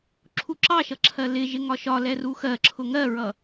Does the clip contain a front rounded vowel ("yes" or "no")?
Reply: no